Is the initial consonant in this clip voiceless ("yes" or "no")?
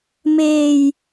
no